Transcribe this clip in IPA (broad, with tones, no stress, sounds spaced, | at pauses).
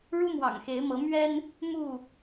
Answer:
ɻ u˦ m w ɑ̰˨˩ ŋ x e˨˦ ɪ̯ m ɤ˨˦ m ɥ ɛ˦ n | m u˥˨